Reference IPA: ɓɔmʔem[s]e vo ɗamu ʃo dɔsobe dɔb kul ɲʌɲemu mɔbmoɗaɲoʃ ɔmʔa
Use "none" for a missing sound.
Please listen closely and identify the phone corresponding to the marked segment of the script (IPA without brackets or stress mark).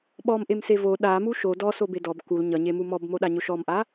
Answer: s